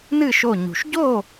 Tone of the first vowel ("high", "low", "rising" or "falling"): falling